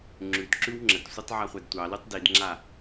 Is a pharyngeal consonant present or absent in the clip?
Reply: present